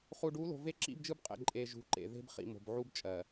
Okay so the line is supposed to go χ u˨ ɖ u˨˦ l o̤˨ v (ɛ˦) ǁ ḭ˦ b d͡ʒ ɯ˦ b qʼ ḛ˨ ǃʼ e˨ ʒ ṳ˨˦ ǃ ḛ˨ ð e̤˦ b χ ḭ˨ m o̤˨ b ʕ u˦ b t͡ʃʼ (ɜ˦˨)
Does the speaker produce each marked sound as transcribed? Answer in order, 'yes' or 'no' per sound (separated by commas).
no, no